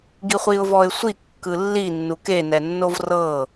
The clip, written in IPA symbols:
ɡ i χʷ i ʊ̯ v ɔ ɪ̯ sʷ i kː ɯ lː i nː u k e n ɛ nː o v r ɤ

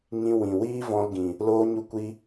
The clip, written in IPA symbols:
ŋ ĩ˧ w ĩ˨ w iː˦ v ɔ̃˧ l ɡ ĩ˨ | l oː˧ ɲ u˧ kʷ i˧

